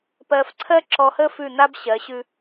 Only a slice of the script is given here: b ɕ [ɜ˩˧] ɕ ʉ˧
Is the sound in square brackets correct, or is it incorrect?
correct